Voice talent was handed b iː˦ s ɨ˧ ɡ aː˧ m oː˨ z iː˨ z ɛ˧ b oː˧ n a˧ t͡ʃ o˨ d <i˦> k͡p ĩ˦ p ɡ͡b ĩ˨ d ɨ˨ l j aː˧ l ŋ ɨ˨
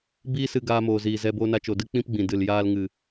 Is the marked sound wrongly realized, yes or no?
yes